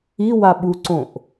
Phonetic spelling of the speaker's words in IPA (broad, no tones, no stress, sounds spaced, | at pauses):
i w a ɓ u ǀ õ ʔ